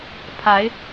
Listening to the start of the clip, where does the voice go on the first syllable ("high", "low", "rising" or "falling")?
rising